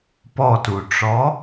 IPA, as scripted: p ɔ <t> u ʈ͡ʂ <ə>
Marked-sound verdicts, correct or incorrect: correct, incorrect

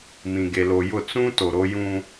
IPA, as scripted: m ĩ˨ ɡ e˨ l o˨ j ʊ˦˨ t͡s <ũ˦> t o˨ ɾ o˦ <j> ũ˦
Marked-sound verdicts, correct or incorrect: correct, correct

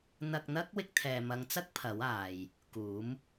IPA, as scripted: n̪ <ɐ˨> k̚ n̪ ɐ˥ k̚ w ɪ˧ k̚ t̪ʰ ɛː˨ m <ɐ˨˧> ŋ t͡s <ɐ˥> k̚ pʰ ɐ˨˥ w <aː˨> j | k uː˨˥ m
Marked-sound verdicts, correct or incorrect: incorrect, correct, correct, correct

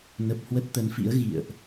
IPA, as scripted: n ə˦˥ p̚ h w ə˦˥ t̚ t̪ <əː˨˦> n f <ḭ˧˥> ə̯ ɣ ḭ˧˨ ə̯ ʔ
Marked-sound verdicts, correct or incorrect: incorrect, correct

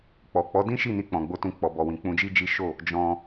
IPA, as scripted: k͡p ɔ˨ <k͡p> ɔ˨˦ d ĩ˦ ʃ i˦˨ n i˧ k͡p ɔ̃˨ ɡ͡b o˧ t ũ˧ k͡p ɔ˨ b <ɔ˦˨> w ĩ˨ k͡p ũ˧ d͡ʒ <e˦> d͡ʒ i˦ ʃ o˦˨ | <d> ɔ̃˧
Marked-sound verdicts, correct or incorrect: correct, incorrect, incorrect, incorrect

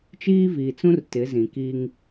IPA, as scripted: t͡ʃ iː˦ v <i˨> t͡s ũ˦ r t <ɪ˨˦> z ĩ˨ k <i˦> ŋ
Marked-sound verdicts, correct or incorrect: incorrect, correct, correct

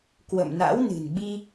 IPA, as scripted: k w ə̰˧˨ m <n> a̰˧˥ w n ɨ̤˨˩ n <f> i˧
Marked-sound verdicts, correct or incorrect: correct, incorrect

